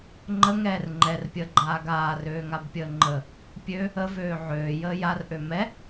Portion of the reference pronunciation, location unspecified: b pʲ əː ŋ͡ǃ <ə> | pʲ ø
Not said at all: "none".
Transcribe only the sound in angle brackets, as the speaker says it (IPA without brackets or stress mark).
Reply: ə